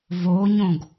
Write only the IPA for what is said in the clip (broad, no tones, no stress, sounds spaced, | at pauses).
v o ɲ õ ɡ